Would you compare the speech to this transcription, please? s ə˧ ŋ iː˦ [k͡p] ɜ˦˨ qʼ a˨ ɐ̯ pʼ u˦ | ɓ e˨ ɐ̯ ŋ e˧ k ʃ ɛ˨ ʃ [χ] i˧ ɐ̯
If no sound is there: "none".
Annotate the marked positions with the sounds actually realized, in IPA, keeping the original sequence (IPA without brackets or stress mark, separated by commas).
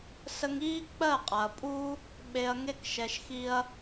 k͡p, x